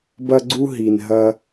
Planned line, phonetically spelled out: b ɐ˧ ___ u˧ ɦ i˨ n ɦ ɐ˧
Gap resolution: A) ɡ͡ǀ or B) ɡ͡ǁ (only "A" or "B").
A